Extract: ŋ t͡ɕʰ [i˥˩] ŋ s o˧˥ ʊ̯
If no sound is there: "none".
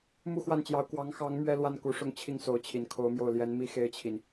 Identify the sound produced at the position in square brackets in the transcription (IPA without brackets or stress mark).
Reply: i˥˩